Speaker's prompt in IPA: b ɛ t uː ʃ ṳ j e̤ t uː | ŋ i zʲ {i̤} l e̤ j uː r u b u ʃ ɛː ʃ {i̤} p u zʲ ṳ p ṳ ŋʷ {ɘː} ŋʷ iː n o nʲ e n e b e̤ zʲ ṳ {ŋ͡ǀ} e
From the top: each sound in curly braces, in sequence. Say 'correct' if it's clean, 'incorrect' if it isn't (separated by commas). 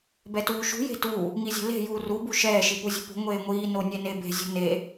incorrect, incorrect, incorrect, incorrect